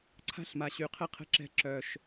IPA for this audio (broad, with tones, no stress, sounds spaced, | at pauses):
ǀʰ a̤˦ ɬ m a˨ ɕ y˨ qʰ ə˦ qʰ ə̤˦ ǁ ɛ̤˦˨ ǁ œ˨ ʃ